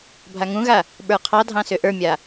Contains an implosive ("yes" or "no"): yes